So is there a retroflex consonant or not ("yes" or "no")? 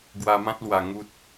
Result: no